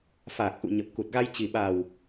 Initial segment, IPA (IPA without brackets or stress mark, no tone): f